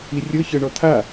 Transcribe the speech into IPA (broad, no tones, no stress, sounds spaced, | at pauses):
i rʲ ɤ ç ɤ ɳ ɔ t̪ʰ a